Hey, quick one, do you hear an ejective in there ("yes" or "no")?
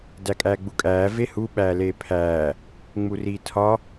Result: yes